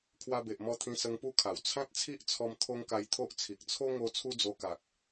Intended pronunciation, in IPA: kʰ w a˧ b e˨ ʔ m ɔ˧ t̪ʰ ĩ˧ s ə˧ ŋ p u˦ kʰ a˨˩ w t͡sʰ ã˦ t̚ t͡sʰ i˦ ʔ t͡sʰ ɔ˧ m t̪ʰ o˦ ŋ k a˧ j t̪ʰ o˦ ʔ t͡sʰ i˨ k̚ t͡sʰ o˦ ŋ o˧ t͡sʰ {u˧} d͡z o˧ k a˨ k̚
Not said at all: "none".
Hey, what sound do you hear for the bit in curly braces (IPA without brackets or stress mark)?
u˦